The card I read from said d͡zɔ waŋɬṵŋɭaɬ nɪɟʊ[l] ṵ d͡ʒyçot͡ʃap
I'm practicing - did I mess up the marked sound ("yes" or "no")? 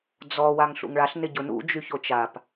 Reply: yes